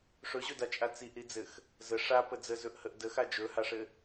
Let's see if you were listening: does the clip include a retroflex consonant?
yes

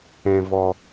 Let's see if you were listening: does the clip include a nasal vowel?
yes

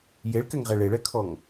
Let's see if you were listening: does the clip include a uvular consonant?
yes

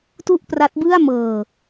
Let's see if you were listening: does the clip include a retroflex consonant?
no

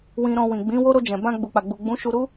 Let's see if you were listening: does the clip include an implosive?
no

